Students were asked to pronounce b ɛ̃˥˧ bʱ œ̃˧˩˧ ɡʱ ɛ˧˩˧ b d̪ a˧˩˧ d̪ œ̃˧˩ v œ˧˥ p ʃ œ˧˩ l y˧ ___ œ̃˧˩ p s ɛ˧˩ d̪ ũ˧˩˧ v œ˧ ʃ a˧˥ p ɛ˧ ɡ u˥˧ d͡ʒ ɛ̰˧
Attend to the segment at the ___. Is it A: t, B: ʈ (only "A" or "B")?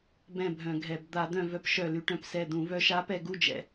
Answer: B